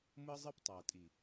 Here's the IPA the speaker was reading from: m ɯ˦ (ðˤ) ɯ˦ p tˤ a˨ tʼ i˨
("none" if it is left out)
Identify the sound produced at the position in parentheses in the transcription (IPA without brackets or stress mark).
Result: zˤ